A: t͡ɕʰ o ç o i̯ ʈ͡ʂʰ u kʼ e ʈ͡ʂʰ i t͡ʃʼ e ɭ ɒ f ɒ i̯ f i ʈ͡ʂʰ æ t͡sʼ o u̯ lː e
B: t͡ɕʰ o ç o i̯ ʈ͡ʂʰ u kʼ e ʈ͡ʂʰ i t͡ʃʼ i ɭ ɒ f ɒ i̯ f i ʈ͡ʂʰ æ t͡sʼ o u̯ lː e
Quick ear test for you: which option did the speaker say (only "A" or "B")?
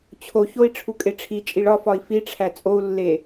B